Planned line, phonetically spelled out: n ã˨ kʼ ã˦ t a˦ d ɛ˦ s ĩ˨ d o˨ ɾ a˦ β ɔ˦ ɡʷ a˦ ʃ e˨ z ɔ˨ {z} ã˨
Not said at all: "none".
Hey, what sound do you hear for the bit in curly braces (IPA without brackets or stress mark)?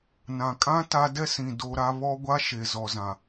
z